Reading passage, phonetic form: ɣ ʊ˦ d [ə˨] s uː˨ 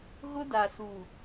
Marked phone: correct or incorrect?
incorrect